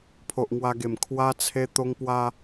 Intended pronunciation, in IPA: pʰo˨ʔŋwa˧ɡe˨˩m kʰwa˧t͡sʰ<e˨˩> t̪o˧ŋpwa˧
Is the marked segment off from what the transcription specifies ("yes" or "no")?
yes